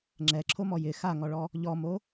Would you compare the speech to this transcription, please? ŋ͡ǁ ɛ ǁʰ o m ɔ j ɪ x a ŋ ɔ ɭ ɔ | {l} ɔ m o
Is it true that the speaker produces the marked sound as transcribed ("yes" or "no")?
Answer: no